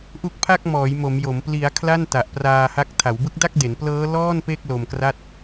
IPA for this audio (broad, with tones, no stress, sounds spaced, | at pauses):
ʔ u˦˥ k̚ pʰ a˥˩ k̚ m ɔː˩˦ j m o˩˦ m j o˩˦ m p l i˩˦ a̯ kʰ l a˥˩ n t a˨˩ ʔ p r aː˧ h a˦˥ k̚ tʰ a˩˦ w b ɯ˦˥ k̚ d a˥˩ k̚ d e˩˦ n p l ɤː˦˥ l ɔː˥˩ n p e˥˩ k̚ l o˧ m k r a˥˩ t̚